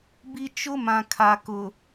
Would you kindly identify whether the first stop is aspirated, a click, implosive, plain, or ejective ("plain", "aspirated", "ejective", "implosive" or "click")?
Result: plain